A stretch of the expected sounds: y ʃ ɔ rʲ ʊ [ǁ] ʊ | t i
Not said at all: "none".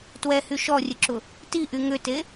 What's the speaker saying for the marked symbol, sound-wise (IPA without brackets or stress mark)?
ǁ